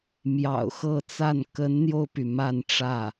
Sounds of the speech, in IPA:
m j ɑ̰˨˩ ʊ̯ x ɤ˥˧ t͡s a˥˩ n k ə˧˥ n n̪ j o˧ ʊ̯ p y˩ m a˥˧ n ʈ͡ʂ ä˥˩

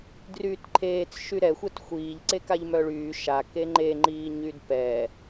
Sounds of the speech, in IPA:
d r yː t ǃʰ eː t͡s ʃ y ɾ ɛ xʷ ɛ t xʷ iː ʎ ǀ e k a ʎ m œ ɭ yː ʃ a k e ŋ͡ǃ e ŋ͡ǃ iː ɲ y d p ɛ

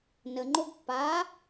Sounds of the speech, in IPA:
n ə ŋ͡ǃ o ɡ pː a

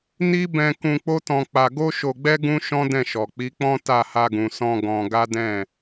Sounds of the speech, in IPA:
n i˦ b ɛ̃˧ k ũ˧ k͡p o˦ t ɔ̃˧ k͡p a˧ ɡ o˦ ʃ o˧ ɡ͡b ɛ˦ ɡ ũ˦ ʃ ɔ̃˦ d ɛ̃˦˨ ʃ ɔ˨ k͡p i˨˦ k͡p ɔ̃˦ t a˦˨ h a˧ ɡ ũ˨ s ɔ̃˧ ɡ ɔ̃˧ ɡ a˦ d ɛ̃˦˨

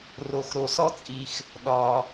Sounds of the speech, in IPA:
r o˨ x ɾ o˨ s ɔ˥ t͡sʼ i˨ x | ɗ ɒ˩

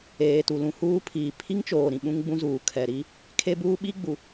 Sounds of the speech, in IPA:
eː˨ t u˨ l ũ˨ h uː˦ pʰ iː˨ pʰ i˦ ŋ t͡ʃ oː˨ ɾ ĩ˨ ɓ ũ˦ ŋ ɡ͡b ũ˦ z uː˨ kʰ ɛ˨ ɾ i˦ | kʰ e˦ b uː˦ ɓ i˦ ɡ͡b u˨

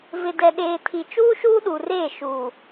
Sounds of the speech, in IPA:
v ɪ˨ d ɛ˨ ɗ eː˨ tʰ i˨ t͡ʃ uː˦ ʃ uː˦ ɗ u˨ r eː˦˨ ʃ uː˨

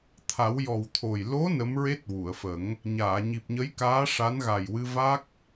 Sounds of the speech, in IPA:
t̪ʰ a˨˩˦ w j ɔ˨˩ w t̪ʰ o˨˩ j l o˧˥ n ə˧˥ m ɹ e˦˥ t̚ w u˨˩˨ ə̯ f ə˨˩˦ ŋ | ɲ aː˨˩˨ ɲ i˨˩ p̚ ɲ ə˧˥ j k aː˧˥ ʂ a˧˥ n ɣ a˨˩ j w ɨ˧ v a˦˥ k̚

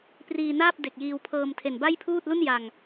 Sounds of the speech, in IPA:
p r iː˧ n aː˥˩ p̚ d e˨˩ k̚ j iː˧ w pʰ ɤː˧ m tʰ e˨˩ n b a˥˩ j pʰ uː˥˩ t̚ l u˥˩ n j a˨˩ ŋ

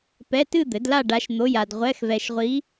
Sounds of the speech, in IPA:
p ɛ˧˥˧ t ɨ˥˧ d̪ ɘ˩˥ d l a˥˧ ɖ a˧˥ ʃ n̪ o˧˥˧ j a˧ d ʁʷ ɛ˧˥˧ x v ɛ˧ ʃ ʁʷ i˧˥

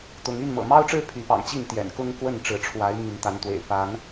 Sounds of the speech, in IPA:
t̪ ʊ˨˦ ŋ y˥˨ n m ɤ̰˨˩ m ɑ˦ ʊ̯ ʈ͡ʂ ɻ̩˦ pʰ y˨˦ p ɑ̰˨˩ ŋ t͡ɕ i˥˨ n t̪ j ɛ̰˨˩ n k ʊ˦ ŋ k w ə˥˨ n ʈ͡ʂ ɻ̩˨˦ ʈ͡ʂʰ w a˨˦ ɪ̯ m y˨˦ n t̪ a˨˦ n t̪ w ḛ˨˩ ɪ̯ p a˨˦ n

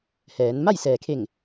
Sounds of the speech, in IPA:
h ɛː˩˧ n m a˥˨ j s ɛː˩ kʰ e˧˩ ŋ

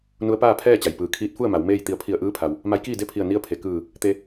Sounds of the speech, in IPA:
n u˧˥ ə̯ p aː˥˨ pʰ ɛː˥˨ t͡ɕ a˩ j p ɯː˩ kʰ iː˧˥ t̚ f u˥˨ ə̯ m a˩˧ w m eː˥˨ j t̪ i˧˩ ə̯ pʰ i˧˩ ə̯ ʔ ɯː˧˥ pʰ a˩ w | m a˧˥ j k iː˥˨ d e˥˨ pʰ i˧˩ ə̯ n i˧˥ ə̯ pʰ e˩ k ɯː˧˩ | t̪ e˧

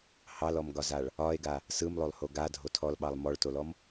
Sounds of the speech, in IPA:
h ɑ l ɔ m ɡ ɒ z a ɭ | ɒ e̯ ɡ a | s ɯ m lˠ o lˠ h o ɡ a dʱ o tʰ ɔ l ɓ ɑ lˠ m ɔ ɭ t o l ɔ m

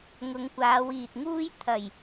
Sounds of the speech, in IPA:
ŋ ʊ˨˧ ŋ kʷ aː˨˧ w iː˨ t̚ ŋ uː˥ j t̪ʰ ɐ˨˩ j

